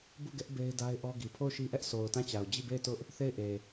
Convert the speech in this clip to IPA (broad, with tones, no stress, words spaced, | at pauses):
bu˦˨ɡɛ˦ʔ be˦ɪ̯da˦ɪ̯ʔɔ˦ɡi˨ pʰo˦˨ʊ̯ʃi˦ʔɛ˦ʔsʰo˨ʊ̯ tã˦˨t͡ɕa˨ʊ̯ d͡ʑi˦˨be˦˨ɪ̯tʊ˦ʔ | θe˦˨ɪ̯ʔe˨